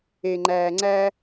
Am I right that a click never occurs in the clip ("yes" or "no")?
no